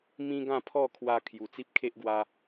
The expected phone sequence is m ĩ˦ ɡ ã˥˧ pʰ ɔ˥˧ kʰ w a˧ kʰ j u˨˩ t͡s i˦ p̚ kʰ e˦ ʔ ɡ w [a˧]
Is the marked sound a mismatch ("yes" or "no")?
no